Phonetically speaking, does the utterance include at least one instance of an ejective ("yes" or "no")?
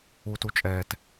yes